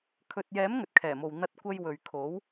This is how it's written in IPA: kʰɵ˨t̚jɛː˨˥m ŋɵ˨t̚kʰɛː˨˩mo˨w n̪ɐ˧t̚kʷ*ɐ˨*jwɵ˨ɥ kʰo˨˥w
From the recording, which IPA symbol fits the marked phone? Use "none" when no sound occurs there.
ɐ˧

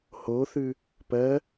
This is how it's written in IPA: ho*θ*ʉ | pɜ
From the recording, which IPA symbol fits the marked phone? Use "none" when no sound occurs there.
θ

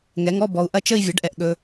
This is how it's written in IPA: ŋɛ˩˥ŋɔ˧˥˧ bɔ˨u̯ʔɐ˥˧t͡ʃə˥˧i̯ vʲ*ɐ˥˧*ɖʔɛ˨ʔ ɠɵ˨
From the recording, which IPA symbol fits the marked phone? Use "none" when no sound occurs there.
ɐ˩˥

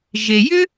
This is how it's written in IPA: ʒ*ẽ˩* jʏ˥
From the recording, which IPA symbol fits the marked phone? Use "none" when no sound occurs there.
e˩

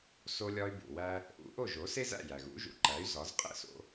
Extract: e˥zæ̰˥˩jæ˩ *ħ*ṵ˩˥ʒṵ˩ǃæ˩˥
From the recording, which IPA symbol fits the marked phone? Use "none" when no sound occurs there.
ɣ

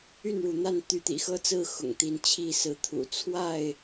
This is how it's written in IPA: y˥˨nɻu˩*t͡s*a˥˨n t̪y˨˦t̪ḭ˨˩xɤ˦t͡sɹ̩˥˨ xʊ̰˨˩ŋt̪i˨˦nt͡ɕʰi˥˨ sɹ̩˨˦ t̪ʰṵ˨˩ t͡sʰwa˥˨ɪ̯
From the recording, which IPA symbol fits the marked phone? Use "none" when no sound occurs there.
n̪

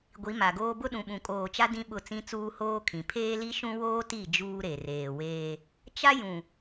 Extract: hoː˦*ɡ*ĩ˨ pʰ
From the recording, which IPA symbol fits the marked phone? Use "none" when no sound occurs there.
kʰ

